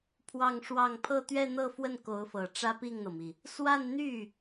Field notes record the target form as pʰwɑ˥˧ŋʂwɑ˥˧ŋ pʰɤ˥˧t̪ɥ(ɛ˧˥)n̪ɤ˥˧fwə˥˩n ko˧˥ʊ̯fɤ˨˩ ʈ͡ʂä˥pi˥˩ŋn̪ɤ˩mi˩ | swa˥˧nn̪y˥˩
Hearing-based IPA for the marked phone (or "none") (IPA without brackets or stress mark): ɛ˥˧